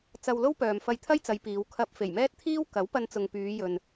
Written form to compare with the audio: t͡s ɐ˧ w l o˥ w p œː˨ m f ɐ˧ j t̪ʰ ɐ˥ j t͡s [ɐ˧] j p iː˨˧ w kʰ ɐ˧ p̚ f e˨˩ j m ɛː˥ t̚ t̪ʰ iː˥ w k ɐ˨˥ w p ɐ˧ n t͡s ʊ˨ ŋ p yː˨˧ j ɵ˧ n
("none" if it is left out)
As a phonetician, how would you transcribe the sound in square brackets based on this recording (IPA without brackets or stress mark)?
ɐ˨˧